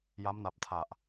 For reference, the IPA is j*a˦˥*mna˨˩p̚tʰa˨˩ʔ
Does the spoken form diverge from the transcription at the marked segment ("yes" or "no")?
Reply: no